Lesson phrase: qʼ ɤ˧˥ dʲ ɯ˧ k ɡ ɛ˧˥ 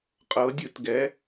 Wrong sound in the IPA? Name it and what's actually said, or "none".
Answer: k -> t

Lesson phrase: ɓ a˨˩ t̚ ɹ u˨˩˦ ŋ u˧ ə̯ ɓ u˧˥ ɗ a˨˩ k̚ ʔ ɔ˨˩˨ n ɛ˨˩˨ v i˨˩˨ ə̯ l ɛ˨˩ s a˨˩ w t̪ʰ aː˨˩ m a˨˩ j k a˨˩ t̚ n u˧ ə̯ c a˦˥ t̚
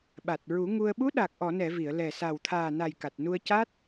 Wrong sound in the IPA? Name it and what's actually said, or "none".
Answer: m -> n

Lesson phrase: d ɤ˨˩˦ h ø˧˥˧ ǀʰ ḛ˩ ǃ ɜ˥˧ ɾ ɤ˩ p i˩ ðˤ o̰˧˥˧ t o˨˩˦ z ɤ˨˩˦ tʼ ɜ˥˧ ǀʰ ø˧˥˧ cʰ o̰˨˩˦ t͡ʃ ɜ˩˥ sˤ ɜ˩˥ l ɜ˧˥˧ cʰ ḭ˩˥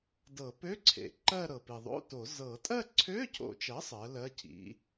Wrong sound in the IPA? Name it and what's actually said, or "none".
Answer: h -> p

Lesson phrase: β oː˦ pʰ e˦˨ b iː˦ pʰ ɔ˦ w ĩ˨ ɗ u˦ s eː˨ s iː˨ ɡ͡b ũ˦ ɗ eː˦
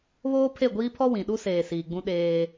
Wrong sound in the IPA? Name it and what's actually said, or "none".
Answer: b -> ɡʷ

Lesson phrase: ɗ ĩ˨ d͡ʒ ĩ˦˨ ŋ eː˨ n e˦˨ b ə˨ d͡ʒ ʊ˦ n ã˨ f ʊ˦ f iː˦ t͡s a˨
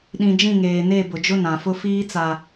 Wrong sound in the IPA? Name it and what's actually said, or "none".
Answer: ə˨ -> ʊ˨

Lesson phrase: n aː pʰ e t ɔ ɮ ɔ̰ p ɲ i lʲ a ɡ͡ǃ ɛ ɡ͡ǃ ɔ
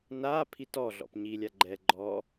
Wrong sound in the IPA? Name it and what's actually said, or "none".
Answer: e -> i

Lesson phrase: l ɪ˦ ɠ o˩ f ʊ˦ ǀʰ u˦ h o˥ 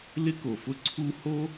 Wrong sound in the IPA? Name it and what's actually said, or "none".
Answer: ɠ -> k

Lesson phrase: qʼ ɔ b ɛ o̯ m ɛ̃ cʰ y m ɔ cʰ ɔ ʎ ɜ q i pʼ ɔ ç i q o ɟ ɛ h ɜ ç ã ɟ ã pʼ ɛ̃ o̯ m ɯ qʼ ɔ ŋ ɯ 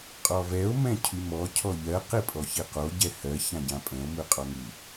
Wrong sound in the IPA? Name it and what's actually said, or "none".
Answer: b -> v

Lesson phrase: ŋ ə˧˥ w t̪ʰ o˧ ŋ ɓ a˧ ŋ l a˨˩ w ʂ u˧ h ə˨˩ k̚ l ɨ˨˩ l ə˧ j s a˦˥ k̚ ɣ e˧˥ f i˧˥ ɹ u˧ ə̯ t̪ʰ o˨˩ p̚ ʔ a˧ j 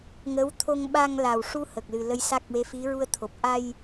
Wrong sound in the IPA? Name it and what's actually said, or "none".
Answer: ɣ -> w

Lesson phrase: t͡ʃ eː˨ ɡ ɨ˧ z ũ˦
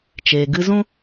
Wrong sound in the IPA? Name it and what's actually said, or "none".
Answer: none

